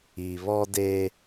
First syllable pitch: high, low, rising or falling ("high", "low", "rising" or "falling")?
low